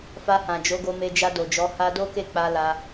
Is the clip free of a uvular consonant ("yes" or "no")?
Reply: yes